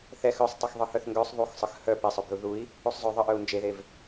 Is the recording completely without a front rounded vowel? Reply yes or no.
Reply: no